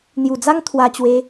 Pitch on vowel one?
low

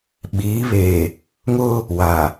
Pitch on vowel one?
rising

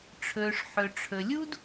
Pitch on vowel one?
low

